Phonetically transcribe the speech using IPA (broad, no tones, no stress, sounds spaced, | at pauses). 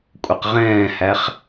kʷʼ ɛ q ʁ ɛ̃ː h æ χ